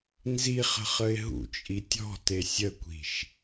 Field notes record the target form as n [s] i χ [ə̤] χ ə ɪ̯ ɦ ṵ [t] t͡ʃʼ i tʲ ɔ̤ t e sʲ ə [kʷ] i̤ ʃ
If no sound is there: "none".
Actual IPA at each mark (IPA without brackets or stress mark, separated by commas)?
z, ə̤, none, kʷ